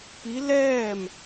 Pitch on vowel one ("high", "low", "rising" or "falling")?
rising